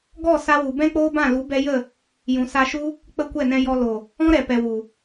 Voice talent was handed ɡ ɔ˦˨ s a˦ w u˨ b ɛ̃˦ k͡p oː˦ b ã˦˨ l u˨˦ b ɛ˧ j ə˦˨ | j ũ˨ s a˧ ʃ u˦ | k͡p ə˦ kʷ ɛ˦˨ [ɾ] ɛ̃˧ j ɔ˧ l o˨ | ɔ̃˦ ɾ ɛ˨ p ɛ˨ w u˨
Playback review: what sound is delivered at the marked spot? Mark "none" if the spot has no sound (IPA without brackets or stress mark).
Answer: n